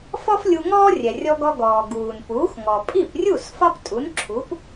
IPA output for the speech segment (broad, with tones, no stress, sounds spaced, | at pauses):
f ɔ˥ f lʲ u˧ ŋ ɔː˥ rʲ ɛ˩ rʲ ɔ˧ ɡ ɔ˧ ɡ ɔː˩ ɡ uː˩ n p uː˩˥ x ŋ ɔ˩ pʼ i˥˩ p rʲ u˥˩ s f ɒ˥ p tʼ u˩˥ n ǁʰ u˩˥ p